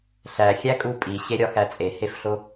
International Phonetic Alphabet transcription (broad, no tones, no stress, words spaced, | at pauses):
ɬæxʲækʼu pʼiɕeɾʲɒxæ t͡sʼehefɬo